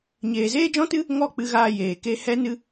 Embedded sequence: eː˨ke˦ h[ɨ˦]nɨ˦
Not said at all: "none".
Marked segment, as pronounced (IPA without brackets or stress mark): ɛ˦